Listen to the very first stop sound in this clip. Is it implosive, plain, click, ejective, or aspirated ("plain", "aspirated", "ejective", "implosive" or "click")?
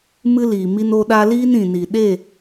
implosive